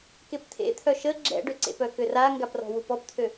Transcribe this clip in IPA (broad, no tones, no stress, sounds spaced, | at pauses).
k e p t̪ʰ ḛ t̪ʰ œ ʃ ə ɡ͡ǁ ɛ̰ ɖ ø ǀ ḛ p œ k ø r a ŋ ɡ a p r ɔ̤ w u p ɔ p t̪ʰ ø